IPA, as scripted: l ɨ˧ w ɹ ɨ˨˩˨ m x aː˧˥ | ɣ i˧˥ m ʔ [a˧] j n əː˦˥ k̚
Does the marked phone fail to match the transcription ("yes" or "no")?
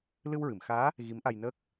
no